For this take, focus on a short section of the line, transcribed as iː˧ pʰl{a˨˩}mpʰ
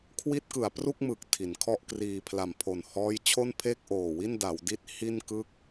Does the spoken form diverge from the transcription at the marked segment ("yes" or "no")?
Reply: no